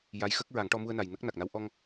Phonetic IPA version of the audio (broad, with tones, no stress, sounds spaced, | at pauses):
j a˧˥ j x ə˦˥ k̚ ɹ a˨˩˦ ŋ ʈ ɔ˧ m u˧ ə̯ n a˨˩ j n ə˦˥ k̚ n a˨˩ k̚ n a˧˥ w ʔ ɔ˧ ŋ